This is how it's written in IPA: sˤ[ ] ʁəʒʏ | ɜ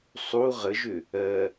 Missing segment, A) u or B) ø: A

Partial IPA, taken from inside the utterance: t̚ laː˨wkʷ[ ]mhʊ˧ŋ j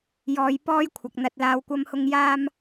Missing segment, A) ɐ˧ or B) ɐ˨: A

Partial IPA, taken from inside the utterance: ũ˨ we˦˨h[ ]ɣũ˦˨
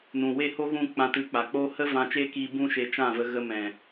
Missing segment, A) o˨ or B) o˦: B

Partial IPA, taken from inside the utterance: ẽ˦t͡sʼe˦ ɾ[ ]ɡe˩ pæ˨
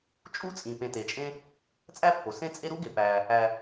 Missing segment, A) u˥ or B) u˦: B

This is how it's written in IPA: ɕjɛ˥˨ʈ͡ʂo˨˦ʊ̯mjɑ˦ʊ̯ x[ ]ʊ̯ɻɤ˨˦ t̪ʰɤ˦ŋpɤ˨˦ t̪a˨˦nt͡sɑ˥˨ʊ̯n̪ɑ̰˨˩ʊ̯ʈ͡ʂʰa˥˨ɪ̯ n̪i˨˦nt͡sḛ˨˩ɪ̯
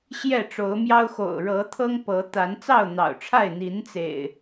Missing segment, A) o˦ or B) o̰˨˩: B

